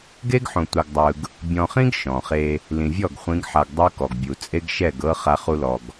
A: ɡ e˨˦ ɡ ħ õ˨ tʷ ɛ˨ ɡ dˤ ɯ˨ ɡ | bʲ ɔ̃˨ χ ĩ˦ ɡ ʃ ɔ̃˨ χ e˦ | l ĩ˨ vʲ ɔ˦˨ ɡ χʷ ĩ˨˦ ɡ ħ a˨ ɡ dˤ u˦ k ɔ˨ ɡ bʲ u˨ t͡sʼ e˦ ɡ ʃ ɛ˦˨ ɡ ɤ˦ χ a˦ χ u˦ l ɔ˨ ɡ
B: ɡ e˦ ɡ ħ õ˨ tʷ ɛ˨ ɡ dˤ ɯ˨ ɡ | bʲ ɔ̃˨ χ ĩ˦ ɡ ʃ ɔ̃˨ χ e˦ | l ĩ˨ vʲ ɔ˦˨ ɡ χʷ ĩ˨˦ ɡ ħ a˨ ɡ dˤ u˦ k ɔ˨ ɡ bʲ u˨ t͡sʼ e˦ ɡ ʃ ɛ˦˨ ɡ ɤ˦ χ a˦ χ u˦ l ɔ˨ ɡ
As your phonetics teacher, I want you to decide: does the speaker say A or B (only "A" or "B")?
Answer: B